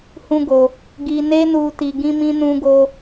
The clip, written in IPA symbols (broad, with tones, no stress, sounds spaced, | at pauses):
h ũ˦ ɡ o˧ | ɡ i˧ n e˦ n u˧ t i˧ ɡ ĩ˦ m ĩ˦ n ũ˦ ɡ o˦